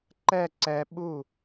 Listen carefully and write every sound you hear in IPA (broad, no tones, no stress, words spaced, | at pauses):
ǃɛ ǀɛ ɓu